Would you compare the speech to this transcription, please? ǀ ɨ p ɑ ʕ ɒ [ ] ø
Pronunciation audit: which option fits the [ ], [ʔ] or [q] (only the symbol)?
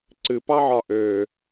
ʔ